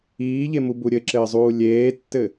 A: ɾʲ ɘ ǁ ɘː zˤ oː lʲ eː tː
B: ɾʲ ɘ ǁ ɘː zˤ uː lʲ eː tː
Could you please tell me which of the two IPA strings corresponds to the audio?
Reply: B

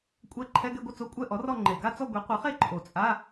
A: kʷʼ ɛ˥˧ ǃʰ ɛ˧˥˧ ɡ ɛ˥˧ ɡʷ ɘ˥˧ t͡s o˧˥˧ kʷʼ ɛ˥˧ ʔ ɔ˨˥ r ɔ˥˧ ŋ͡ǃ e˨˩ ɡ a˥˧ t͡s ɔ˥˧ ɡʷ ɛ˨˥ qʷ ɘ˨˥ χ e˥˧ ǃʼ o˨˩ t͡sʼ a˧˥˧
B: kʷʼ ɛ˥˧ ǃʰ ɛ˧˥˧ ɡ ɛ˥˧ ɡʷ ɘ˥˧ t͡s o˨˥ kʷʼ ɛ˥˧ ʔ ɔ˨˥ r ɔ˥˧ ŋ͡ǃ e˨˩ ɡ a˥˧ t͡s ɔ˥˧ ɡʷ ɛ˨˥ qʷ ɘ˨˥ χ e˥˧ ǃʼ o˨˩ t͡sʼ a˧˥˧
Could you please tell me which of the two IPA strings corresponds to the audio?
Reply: A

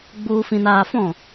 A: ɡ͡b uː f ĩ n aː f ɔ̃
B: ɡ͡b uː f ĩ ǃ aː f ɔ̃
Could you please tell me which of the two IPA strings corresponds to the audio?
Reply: A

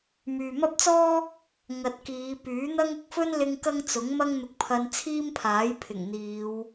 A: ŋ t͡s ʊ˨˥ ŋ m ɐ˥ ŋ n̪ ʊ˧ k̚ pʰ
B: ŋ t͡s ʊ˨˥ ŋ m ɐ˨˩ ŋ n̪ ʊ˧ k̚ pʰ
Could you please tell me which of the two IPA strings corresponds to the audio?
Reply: A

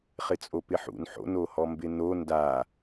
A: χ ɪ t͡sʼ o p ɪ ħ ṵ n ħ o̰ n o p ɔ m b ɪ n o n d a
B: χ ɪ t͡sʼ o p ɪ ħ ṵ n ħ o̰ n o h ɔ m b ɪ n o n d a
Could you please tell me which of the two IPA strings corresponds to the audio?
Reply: B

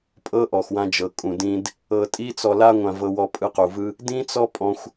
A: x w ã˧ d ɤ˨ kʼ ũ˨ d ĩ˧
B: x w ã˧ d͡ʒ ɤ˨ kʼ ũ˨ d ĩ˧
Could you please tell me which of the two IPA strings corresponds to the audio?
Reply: B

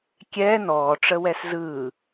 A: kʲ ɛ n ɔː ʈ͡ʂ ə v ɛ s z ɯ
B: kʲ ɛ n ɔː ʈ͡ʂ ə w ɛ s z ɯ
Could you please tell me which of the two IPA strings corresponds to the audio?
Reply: B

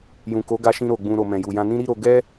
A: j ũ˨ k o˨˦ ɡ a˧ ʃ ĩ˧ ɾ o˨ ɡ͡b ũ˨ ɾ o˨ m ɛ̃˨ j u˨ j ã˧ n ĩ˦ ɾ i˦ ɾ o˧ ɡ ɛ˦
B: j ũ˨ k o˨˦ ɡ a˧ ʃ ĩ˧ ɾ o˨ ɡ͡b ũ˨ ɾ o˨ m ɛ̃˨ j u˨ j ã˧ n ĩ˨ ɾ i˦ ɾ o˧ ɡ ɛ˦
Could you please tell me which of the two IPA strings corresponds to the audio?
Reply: A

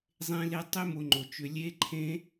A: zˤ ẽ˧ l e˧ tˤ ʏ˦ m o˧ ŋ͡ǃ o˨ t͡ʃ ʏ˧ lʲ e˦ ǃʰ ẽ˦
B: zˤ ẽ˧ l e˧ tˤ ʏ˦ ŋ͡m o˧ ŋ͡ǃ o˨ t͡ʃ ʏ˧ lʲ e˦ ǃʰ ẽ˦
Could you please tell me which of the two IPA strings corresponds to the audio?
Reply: A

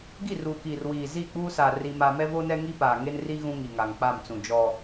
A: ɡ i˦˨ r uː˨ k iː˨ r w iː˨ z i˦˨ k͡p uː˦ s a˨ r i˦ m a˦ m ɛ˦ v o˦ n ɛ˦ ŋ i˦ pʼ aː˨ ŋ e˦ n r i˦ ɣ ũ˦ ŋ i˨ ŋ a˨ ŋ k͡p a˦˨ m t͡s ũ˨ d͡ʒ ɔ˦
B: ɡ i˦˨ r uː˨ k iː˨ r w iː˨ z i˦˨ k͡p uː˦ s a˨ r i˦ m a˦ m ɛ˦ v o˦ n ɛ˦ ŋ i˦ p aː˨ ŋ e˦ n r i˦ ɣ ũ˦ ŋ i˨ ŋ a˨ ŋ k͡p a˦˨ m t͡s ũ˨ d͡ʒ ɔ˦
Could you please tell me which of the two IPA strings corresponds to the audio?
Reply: B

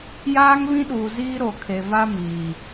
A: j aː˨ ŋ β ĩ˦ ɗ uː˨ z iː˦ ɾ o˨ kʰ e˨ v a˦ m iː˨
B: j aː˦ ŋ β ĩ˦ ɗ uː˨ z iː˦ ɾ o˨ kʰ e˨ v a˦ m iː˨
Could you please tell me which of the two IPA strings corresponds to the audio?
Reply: B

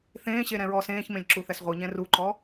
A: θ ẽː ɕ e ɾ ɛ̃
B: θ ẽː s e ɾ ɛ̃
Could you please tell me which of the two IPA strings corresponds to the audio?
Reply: A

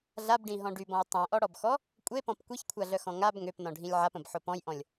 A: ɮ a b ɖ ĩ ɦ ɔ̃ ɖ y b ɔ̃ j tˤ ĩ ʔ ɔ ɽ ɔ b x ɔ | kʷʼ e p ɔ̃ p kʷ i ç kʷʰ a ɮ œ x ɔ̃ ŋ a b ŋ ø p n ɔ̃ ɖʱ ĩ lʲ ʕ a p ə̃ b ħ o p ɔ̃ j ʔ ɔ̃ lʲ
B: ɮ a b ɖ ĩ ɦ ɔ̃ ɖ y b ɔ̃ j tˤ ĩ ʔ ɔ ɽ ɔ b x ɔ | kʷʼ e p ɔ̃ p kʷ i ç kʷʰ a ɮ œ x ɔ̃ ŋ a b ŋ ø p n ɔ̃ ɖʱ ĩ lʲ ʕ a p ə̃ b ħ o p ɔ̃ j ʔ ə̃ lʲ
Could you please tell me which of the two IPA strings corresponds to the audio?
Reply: A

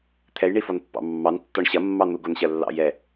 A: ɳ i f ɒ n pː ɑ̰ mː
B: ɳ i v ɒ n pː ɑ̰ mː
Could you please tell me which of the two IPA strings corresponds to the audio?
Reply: A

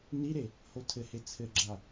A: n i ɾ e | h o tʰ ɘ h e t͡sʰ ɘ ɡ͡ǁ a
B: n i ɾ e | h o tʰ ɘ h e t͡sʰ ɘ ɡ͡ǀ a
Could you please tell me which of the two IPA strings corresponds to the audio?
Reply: A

